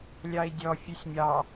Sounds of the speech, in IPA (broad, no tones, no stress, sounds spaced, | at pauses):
lʲ ɑ i̯ dʲ ɔ fʲ ʉ sʲ mʲ ɑ